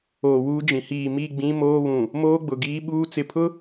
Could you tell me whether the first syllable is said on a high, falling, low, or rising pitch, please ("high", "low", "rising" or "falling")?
low